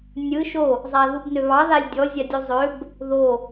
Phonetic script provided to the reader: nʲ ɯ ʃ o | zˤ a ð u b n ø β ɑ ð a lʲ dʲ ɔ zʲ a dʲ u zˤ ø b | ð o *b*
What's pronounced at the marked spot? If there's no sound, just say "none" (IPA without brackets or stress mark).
none